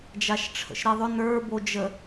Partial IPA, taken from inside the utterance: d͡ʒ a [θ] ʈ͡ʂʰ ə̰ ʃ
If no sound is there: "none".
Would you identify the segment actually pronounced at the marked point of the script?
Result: ʃ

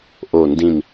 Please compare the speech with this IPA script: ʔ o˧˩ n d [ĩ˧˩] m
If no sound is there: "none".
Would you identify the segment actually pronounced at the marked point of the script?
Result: ĩ˧˩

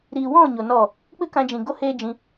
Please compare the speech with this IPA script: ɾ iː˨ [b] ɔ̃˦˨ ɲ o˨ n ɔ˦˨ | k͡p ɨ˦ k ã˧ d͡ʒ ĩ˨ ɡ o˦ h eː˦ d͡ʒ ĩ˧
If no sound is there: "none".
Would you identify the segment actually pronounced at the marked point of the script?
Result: w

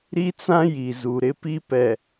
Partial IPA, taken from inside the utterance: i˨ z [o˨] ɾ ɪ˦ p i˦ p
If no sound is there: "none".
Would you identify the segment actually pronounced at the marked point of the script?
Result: u˨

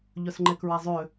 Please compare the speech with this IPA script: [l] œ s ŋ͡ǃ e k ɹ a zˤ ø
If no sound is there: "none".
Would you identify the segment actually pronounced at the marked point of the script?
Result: ʎ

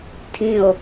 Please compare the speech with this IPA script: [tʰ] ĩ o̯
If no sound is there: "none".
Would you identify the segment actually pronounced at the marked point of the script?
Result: tʰ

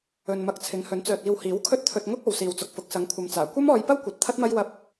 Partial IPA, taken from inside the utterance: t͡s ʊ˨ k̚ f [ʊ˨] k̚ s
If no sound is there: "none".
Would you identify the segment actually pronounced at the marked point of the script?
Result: ʊ˨˥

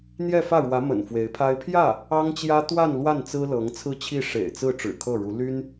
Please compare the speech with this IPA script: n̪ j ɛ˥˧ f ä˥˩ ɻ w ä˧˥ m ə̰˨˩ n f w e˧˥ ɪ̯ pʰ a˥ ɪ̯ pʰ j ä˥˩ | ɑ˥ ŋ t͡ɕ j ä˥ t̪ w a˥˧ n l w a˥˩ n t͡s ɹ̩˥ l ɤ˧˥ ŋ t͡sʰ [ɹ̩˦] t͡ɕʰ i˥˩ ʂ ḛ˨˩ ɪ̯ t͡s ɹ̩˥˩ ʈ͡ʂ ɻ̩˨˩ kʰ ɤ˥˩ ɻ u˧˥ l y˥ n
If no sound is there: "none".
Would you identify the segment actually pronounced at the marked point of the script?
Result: ɹ̩˥˧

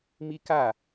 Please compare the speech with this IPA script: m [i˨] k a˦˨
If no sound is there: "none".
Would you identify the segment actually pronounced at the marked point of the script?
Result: i˦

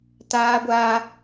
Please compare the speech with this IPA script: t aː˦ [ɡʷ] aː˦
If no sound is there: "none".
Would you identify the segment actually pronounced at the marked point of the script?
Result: ɡʷ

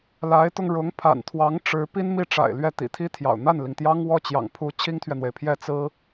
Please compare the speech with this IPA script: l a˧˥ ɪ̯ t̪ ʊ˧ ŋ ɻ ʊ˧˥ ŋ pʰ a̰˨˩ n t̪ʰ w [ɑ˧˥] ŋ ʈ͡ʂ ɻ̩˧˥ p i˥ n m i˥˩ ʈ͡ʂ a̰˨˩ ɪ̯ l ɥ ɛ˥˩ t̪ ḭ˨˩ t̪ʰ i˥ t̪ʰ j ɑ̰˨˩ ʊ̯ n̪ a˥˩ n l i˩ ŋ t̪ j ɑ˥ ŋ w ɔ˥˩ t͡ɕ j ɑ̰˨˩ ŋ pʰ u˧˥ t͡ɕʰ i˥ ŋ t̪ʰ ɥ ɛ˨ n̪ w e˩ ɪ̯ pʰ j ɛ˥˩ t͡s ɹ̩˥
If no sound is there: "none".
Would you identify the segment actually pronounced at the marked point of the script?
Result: ɑ˧˥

